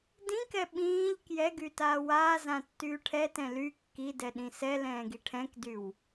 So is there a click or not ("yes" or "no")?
no